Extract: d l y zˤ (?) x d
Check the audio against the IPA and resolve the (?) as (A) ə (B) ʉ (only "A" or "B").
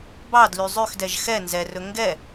B